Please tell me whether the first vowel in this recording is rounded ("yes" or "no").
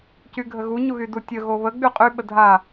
yes